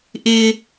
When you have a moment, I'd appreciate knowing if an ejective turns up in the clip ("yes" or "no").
no